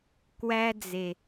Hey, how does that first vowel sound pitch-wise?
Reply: high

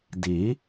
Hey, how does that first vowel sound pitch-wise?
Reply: rising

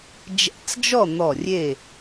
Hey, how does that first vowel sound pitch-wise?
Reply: rising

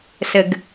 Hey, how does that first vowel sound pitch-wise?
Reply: low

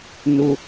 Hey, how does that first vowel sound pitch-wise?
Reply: low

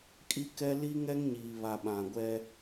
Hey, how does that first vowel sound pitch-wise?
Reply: high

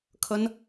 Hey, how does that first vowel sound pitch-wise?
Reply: high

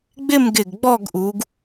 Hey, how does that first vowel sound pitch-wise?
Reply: falling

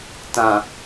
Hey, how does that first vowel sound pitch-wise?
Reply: low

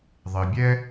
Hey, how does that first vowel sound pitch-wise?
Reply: low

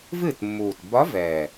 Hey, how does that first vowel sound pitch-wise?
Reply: falling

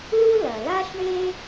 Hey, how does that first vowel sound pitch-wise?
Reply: high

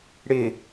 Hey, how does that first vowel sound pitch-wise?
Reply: low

